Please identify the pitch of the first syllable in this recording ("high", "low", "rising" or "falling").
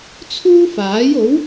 high